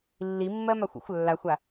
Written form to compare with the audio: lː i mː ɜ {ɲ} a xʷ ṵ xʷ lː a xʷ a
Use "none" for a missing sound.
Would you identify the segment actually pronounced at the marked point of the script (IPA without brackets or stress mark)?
m